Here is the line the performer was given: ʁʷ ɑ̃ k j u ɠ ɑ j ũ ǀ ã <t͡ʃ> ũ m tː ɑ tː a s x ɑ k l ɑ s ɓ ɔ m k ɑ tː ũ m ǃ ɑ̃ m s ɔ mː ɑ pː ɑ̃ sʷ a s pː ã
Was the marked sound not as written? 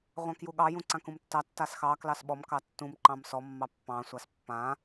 yes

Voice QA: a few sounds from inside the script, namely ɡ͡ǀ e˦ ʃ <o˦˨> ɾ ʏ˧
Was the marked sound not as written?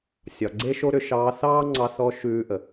yes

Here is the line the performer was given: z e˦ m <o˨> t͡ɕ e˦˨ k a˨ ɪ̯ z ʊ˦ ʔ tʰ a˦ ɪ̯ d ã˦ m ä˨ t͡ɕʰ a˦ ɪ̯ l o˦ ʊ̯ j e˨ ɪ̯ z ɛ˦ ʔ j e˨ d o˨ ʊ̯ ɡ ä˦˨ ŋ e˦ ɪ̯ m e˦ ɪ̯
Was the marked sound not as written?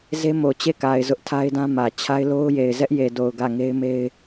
no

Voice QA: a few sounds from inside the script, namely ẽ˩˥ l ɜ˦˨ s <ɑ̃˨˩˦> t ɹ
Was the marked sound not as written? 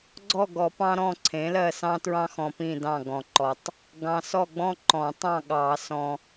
yes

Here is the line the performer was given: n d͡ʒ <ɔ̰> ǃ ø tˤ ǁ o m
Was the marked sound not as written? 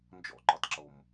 no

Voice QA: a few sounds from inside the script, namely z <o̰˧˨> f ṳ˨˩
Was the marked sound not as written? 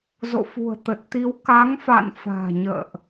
no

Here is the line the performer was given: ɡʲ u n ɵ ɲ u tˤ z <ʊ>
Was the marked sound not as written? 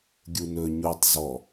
yes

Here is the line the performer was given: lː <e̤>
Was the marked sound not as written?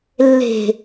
no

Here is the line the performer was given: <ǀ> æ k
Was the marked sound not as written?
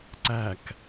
no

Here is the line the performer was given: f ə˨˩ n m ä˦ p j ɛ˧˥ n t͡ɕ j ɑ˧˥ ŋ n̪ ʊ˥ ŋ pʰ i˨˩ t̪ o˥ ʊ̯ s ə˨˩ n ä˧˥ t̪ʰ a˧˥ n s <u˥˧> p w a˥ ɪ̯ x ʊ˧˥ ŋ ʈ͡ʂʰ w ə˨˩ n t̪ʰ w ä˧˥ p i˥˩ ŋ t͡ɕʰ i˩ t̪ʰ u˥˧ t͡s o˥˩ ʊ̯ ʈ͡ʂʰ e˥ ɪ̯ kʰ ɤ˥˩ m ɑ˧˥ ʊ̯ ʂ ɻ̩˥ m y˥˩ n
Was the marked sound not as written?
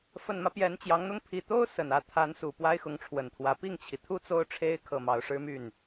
yes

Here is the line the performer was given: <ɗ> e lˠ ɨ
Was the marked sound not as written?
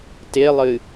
yes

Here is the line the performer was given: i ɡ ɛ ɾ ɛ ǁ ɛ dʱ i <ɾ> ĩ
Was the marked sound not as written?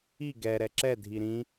no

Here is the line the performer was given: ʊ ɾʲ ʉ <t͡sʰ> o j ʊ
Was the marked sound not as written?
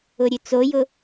yes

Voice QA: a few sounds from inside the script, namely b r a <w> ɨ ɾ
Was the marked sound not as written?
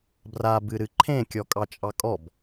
yes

